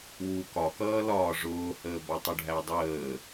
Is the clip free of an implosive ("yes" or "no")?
yes